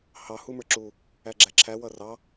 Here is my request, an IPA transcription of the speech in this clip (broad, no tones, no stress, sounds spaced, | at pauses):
h ɑ h u m ə˞ ǁ u | æ ɡ͡ǁ æ ǁʰ æ w ʌ r ɑ